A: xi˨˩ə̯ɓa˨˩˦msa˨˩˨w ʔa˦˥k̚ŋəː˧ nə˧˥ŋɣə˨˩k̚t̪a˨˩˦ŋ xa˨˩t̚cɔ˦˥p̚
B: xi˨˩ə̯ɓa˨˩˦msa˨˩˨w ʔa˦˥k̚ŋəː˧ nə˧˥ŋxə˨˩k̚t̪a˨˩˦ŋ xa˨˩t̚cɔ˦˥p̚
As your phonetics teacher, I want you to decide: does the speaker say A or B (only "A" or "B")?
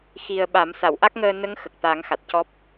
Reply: B